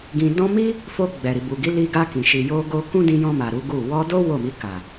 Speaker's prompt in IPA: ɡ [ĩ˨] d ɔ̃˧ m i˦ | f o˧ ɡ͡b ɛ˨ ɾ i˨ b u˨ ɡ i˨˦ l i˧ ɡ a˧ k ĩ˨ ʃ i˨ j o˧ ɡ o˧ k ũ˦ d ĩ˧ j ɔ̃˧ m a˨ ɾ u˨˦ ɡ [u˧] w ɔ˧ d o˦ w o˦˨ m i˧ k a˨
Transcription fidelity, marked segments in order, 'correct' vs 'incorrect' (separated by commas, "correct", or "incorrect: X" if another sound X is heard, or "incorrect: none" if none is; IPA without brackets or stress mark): correct, incorrect: u˦˨